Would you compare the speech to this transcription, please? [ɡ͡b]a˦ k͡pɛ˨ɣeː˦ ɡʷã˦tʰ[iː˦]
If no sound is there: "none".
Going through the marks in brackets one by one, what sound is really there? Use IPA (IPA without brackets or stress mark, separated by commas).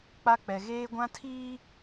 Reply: k͡p, iː˦